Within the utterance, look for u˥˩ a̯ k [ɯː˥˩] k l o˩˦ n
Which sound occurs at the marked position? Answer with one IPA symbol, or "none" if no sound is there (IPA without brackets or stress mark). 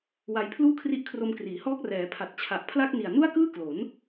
ɯː˥˩